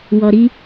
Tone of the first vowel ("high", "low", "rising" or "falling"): low